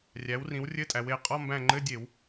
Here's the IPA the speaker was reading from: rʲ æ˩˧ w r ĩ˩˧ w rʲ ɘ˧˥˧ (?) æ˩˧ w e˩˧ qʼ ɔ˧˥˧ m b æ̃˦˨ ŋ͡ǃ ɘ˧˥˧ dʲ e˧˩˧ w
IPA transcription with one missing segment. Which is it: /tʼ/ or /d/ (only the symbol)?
tʼ